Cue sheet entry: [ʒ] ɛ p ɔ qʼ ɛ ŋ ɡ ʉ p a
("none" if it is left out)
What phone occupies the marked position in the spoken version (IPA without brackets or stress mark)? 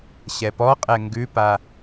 ɕ